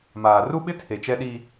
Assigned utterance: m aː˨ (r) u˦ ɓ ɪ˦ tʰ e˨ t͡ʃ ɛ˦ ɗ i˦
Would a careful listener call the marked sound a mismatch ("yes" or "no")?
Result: no